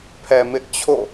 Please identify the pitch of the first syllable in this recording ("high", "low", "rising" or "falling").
low